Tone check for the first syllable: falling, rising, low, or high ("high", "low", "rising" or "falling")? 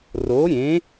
rising